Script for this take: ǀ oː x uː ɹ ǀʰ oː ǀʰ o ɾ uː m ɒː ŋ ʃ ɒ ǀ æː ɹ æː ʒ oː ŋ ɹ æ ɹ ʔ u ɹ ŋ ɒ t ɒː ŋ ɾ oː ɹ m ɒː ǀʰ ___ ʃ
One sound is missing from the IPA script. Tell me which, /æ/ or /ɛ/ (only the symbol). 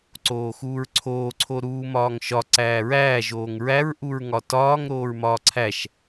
æ